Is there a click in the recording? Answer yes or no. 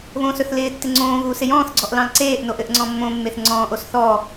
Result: yes